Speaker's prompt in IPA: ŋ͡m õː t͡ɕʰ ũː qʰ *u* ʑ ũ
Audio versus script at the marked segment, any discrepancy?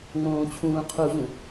no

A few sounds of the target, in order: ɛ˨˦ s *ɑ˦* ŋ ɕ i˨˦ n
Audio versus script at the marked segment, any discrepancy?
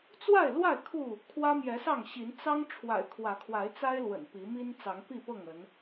yes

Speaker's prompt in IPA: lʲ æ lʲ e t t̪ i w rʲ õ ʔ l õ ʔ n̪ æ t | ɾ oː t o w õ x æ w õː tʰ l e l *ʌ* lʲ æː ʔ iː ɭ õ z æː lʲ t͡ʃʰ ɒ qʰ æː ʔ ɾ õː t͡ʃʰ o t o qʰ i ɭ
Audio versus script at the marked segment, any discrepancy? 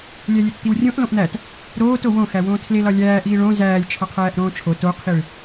yes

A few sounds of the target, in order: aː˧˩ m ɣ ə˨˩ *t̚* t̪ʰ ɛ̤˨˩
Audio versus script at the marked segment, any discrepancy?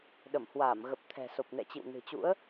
yes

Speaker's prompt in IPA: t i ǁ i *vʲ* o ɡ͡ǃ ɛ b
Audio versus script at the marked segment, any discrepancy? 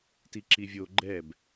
no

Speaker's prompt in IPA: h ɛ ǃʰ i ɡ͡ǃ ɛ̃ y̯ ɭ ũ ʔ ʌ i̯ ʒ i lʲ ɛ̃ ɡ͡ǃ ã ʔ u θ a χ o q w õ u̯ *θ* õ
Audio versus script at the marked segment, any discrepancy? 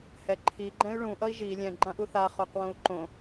yes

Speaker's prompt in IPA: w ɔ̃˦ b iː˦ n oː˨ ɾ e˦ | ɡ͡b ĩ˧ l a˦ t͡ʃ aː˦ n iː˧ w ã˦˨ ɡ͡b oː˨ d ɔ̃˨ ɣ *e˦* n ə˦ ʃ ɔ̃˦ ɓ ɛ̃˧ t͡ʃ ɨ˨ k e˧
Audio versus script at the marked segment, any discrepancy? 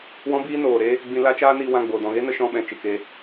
no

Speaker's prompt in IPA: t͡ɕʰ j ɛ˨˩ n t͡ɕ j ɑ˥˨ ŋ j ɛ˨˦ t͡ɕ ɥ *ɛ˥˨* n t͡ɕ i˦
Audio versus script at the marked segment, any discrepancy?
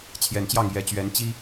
yes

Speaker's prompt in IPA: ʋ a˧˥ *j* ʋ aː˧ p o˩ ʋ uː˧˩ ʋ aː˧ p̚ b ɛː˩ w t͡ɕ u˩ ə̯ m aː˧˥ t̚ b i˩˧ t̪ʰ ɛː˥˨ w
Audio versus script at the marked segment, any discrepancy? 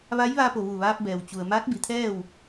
no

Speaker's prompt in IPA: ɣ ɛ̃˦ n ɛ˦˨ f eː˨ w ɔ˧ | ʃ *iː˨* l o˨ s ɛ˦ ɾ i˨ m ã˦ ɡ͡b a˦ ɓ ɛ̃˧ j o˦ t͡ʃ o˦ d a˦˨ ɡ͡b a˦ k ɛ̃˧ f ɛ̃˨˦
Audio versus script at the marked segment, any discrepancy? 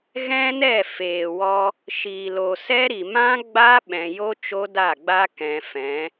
no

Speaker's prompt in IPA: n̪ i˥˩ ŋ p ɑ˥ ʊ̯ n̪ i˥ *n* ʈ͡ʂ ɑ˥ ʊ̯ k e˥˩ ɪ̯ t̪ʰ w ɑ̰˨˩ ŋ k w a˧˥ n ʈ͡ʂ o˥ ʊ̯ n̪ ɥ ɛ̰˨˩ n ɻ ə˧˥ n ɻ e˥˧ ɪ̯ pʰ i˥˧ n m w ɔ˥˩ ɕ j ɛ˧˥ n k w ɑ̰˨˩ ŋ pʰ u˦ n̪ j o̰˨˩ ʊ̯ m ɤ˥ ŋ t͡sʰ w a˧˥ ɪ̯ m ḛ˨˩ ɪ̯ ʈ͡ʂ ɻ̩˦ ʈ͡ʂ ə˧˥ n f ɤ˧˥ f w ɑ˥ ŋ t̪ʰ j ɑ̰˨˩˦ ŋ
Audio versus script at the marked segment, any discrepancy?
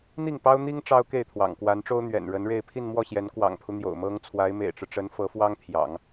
yes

